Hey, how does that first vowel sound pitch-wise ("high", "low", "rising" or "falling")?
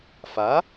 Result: rising